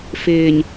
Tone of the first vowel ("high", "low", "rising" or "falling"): low